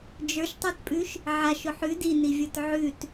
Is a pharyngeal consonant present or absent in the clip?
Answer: present